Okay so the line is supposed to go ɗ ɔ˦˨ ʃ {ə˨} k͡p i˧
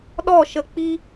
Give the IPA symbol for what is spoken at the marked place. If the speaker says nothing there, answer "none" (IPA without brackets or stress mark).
ə˨